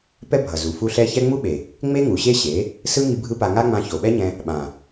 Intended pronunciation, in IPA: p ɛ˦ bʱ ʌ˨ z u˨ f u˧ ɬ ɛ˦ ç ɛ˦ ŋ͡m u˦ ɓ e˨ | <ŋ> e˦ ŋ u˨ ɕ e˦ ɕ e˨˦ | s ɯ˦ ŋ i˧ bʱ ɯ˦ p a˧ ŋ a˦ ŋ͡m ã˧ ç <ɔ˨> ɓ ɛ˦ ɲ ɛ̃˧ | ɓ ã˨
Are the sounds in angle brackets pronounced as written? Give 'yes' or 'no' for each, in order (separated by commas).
no, no